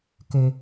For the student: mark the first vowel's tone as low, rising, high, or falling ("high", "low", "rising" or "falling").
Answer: low